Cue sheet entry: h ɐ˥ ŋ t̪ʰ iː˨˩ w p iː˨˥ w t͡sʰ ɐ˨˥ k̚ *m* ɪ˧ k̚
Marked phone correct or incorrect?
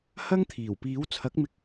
correct